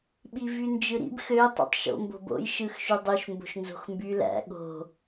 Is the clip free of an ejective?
yes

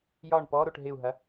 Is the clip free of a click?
yes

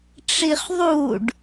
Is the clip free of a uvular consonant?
no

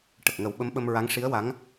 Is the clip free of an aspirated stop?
yes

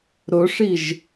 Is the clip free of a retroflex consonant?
no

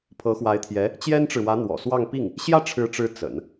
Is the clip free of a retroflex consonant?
no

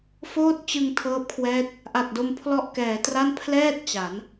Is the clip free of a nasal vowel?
yes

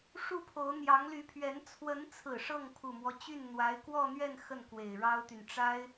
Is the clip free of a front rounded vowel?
no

